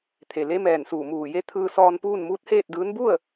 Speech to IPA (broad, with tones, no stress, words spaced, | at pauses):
t̪ʰe˩ le˧˥mɛː˧˩nsuː˧˩ muː˧˩je˧˥ t̪ʰɯː˧sɔː˧n puː˥˨nmuː˧˥t̚heː˥˨t̚dɯː˧˥n bu˥˨ə̯